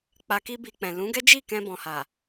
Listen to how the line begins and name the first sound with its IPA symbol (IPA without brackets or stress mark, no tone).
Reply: k͡p